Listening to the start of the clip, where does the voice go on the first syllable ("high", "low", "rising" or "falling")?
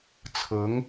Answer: rising